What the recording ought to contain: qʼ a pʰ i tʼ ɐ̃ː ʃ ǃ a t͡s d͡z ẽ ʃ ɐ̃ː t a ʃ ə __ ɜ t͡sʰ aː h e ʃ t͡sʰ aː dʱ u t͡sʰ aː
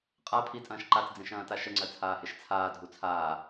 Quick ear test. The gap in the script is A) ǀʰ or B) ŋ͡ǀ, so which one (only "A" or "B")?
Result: B